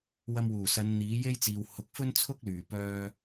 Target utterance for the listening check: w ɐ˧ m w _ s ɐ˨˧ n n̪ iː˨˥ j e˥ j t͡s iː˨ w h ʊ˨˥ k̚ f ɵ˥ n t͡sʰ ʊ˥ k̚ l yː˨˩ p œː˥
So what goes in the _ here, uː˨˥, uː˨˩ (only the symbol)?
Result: uː˨˩